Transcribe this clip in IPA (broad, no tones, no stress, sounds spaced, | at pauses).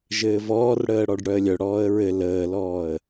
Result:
ʒ ɘː v ɔː r ɽ əː ɽ ɔ ɖ ɽ œ ə̯ lʲ œ ɽ ɔː ə̯ ɹ ɘ l əː l ɔː ə̯